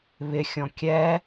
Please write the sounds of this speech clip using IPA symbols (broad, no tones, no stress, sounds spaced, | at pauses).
β ɪ xʲ ɔ̃ kʲ ɛ